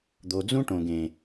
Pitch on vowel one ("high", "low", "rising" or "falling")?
low